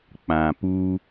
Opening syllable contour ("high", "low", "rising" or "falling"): low